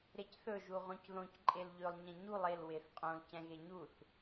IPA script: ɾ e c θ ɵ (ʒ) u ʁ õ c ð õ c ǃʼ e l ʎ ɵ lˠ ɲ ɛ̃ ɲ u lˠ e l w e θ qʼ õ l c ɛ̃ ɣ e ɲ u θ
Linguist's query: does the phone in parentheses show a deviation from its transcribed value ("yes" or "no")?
no